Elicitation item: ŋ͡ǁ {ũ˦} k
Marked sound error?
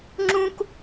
no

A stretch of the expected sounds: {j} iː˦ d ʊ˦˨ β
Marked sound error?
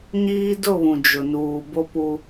yes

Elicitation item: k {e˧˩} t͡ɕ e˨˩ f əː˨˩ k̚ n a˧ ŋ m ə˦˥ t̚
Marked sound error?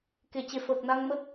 no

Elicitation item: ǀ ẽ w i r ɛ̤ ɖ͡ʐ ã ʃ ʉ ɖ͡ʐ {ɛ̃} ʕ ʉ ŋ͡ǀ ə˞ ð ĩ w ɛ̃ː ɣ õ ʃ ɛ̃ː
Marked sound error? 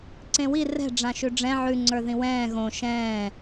no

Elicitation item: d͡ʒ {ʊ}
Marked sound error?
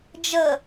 yes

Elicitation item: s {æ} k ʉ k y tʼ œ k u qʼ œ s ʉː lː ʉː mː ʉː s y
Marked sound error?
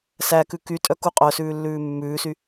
no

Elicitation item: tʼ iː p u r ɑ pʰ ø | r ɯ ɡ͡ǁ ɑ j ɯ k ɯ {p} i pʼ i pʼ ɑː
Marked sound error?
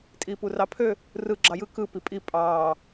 no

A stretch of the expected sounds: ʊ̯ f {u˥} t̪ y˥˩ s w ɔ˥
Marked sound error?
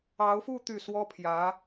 yes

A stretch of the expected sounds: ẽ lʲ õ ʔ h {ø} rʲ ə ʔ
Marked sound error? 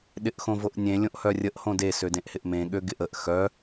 yes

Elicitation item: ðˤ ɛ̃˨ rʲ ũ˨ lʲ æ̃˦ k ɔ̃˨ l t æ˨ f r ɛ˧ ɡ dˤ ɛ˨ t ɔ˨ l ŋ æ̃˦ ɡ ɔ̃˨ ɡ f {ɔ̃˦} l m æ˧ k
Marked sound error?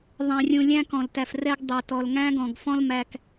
no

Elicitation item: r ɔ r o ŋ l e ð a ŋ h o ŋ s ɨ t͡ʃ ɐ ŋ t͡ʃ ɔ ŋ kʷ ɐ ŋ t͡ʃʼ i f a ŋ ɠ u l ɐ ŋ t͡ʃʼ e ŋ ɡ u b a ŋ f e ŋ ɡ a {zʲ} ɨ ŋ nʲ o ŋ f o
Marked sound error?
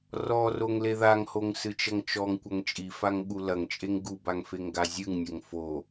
no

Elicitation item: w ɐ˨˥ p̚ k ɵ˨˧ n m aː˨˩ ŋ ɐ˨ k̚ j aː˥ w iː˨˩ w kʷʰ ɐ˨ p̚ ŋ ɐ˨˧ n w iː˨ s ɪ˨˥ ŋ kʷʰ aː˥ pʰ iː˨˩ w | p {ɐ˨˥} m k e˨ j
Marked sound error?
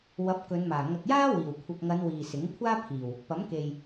no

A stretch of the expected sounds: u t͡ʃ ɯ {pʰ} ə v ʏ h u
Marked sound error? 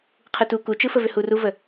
yes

